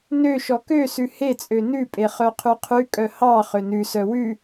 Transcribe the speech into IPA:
n ø ʃ ɔ k ø s ʉ h e t͡sʼ ø n ʉ pʼ e χ œ qʰ ʉ qʰ ʉ kʼ œ h ɑ χ ø n ʉ s œ w ʉ

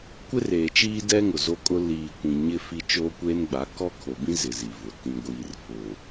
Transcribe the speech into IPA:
kʷ ɪ˦ r eː˨ t͡ʃ iː˦ d ɛ˦ ŋ ʊ˨ z o˦ kʼ ʊ˦ l iː˨ kʷ ĩ˨ ɲ ɪ˦ f i˦ t͡ʃ oː˦ kʷ eː˦ n ɡ͡b a˨˦ k ɔ˦ kʰ o˨ b ĩ˦ z ɪ˨ z i˨ v ʊ˨ t ĩ˨ ɡʷ iː˨ r f ʊ˨

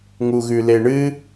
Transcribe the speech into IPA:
ŋ u ɣ ʉ l e ɳ ɨ

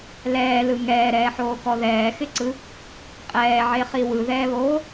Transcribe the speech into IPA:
l ɛː l ɯ ŋ ɛː ɾ ɛː ħ oː k ɔ ð ɛː x ɪ ǀ ɯ | qʼ ɛː ʕ e χ i w ɯ ð ɛː β oː

